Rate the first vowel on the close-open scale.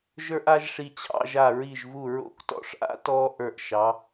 mid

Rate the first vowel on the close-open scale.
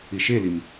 close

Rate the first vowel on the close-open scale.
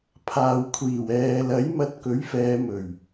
open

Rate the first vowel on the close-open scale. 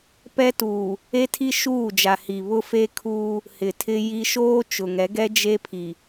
mid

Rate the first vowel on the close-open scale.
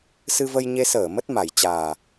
close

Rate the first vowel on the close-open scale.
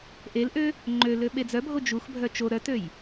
mid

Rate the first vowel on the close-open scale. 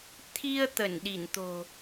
close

